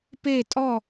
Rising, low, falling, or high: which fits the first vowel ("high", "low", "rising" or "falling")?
falling